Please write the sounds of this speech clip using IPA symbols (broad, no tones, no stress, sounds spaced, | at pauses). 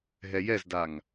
ɦ ɛ j ɛ z d a ŋ